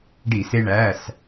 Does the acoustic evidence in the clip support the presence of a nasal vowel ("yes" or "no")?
no